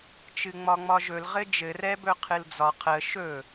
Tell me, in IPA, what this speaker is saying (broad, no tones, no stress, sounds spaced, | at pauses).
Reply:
t͡ʃ ɨ ŋ͡m ɒ ŋ͡m ɒ ʒ ɵ l ʁ ɘ d͡ʒ ɘ r ɛ b ɵ qʰ ɨ l d͡z ɒ qʰ ə ʃ ɵ